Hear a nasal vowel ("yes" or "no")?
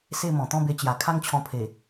yes